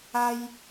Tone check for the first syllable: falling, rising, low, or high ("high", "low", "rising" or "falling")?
high